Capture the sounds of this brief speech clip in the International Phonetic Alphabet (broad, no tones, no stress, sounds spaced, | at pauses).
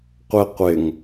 qʷ ɪ qʷ ɪ ŋ